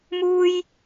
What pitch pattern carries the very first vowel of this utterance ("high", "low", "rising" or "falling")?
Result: high